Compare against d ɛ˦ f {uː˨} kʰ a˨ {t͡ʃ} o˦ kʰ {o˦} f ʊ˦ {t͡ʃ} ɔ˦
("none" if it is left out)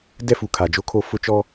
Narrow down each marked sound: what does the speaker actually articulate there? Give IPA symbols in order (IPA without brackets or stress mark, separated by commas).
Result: u˨, d͡ʒ, o˦, t͡ʃ